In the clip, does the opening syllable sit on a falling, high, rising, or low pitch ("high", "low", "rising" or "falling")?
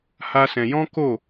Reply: high